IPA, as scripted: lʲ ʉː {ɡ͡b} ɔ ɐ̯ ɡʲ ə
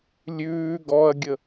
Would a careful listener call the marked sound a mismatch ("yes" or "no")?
yes